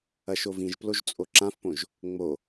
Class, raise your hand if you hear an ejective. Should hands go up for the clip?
yes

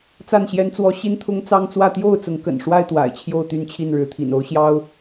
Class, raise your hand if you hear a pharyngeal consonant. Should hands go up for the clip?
no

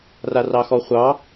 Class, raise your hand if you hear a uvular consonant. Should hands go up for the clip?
yes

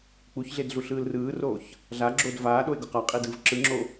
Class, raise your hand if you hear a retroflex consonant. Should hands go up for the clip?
no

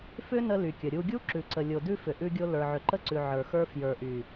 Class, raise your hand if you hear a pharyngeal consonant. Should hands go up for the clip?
yes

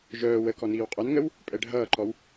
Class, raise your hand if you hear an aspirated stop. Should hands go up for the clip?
no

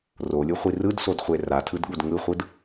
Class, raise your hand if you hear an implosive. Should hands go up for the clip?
yes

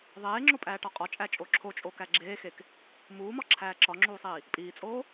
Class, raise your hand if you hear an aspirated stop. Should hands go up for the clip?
yes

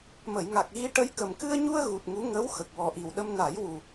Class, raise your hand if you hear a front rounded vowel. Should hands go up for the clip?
no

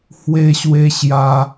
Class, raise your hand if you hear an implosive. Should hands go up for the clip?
no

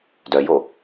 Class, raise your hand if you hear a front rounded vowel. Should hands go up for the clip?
yes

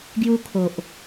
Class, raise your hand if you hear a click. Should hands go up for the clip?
no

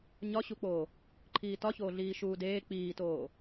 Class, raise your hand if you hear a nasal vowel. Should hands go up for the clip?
no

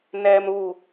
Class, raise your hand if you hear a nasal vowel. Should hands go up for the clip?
no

